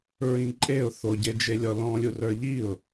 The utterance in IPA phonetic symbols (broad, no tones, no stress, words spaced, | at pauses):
ɹĩǃʼeʊ̯ θoɟed͡ʒelʲɔ lɔ̃lʲu rə˞ʎiʊ̯